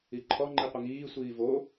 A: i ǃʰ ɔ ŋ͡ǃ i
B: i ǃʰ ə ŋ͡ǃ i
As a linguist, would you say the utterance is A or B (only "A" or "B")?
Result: A